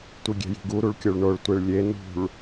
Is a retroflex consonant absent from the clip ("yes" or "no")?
no